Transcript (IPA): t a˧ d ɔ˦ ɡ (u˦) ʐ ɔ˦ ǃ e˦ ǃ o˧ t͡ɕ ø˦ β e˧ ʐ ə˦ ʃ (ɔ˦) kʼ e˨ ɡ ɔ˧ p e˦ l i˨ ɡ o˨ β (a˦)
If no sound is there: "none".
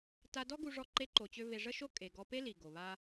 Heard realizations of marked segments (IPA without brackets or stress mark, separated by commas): u˧, o˦, a˦